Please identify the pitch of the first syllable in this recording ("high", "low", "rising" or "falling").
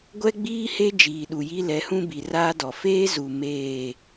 high